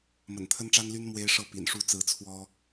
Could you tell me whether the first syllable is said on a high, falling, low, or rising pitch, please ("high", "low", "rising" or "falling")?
low